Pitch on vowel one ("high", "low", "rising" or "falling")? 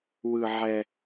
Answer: high